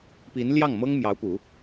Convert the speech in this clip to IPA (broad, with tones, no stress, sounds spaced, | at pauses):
p i˧˥ n l j ɑ˥˩ ŋ m ɤ˥ ŋ m j ɑ˧˥ ʊ̯ p u˨˩˦